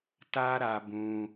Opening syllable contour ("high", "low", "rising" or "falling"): high